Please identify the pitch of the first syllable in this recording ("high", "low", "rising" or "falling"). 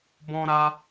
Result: high